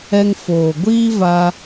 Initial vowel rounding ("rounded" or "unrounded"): unrounded